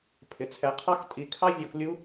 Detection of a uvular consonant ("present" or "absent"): present